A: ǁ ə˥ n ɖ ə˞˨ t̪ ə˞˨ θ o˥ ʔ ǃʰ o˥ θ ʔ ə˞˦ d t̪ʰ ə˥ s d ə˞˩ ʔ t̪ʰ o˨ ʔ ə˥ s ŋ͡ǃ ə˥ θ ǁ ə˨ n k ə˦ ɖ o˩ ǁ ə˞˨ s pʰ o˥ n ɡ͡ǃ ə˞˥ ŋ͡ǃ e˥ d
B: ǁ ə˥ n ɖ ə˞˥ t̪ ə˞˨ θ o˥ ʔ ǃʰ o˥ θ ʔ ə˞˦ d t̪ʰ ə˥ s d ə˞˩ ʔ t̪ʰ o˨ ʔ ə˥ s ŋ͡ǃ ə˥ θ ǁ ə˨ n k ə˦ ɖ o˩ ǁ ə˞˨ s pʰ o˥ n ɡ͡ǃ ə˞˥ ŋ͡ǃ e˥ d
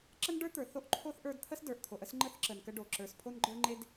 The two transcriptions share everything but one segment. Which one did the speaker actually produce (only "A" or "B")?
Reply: B